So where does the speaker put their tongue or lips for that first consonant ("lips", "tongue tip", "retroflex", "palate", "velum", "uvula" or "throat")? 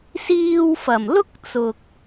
tongue tip